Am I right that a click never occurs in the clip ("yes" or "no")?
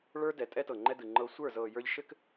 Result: no